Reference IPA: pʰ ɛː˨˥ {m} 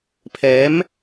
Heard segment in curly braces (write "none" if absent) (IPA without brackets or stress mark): m